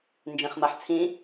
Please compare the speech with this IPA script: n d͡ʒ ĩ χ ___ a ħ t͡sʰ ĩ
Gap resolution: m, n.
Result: m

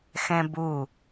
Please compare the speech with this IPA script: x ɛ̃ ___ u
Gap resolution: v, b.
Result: b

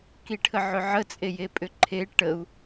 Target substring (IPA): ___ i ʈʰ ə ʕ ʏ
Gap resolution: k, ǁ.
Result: k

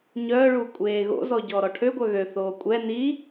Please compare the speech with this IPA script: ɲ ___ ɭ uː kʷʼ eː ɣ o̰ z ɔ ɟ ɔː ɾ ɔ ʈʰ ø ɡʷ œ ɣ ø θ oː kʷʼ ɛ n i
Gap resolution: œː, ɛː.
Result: œː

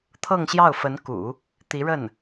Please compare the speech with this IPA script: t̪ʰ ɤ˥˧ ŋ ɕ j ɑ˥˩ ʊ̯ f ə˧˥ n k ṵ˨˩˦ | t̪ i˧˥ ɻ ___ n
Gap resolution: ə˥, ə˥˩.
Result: ə˥˩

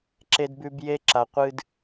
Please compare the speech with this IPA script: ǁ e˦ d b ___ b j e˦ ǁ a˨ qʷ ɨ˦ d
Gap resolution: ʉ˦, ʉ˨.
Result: ʉ˦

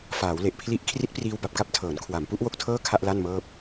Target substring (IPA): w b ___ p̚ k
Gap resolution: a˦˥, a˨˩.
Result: a˨˩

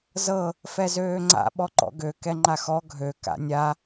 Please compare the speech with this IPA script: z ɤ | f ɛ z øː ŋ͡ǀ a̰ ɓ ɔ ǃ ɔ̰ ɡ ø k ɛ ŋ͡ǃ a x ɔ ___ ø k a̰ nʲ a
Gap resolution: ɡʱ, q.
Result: ɡʱ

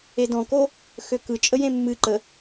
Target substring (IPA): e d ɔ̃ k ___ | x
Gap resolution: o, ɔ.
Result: o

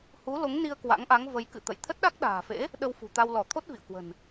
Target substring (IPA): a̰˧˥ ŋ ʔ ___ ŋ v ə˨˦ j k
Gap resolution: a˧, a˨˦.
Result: a˨˦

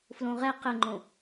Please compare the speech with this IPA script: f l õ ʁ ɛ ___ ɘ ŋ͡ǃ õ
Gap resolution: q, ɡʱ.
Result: q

